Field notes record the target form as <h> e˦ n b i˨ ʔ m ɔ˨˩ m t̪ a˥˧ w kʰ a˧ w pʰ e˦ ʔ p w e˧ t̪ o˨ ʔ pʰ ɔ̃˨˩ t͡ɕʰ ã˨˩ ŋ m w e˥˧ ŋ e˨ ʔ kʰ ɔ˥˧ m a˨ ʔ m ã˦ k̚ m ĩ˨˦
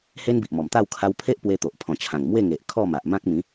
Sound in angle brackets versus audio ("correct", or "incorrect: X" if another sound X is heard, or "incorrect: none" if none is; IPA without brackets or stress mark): correct